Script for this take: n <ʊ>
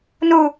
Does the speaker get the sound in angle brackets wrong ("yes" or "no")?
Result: yes